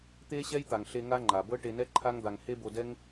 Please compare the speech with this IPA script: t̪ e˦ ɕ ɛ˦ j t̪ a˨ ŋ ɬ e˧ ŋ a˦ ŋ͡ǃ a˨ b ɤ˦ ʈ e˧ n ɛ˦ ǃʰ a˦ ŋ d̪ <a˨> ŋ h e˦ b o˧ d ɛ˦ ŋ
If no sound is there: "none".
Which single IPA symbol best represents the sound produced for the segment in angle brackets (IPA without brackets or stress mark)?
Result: a˧